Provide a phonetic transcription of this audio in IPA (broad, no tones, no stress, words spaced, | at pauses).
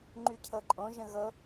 ŋ͡ǃycʰɤǃʼõ ʒə̃ɣɤ